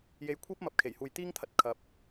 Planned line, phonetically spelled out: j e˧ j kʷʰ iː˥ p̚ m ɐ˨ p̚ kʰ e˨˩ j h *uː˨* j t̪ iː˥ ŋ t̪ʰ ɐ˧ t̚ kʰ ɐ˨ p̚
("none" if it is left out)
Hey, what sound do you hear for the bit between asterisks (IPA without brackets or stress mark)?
uː˨